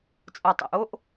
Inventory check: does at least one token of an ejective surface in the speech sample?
yes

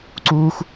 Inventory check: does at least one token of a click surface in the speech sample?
yes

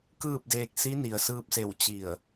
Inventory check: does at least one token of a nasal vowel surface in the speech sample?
no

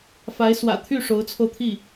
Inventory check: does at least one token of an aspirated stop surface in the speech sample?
yes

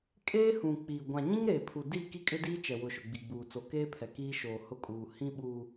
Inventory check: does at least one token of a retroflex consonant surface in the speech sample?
no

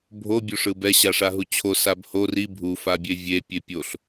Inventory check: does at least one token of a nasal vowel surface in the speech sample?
no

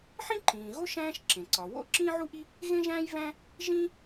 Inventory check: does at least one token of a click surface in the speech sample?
yes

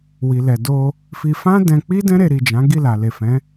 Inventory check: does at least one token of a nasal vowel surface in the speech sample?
yes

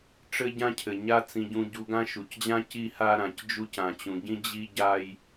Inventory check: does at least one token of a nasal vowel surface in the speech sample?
yes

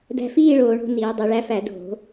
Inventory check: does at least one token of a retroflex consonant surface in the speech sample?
yes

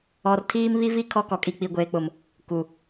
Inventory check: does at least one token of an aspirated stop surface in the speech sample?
yes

